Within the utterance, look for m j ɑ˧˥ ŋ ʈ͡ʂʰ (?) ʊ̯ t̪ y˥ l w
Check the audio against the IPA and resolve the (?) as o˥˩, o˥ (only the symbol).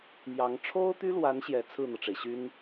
o˥